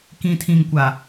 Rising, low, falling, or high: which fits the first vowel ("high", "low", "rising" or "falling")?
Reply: low